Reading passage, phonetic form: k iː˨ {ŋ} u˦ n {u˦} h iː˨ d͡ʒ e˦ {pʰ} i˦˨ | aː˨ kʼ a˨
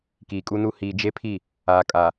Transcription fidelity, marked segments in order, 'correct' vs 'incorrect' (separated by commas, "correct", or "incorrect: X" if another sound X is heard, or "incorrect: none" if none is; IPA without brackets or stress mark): incorrect: kʼ, correct, correct